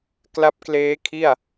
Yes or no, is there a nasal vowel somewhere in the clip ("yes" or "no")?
no